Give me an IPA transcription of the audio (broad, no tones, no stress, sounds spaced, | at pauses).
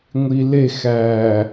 ŋʷ i l e x æ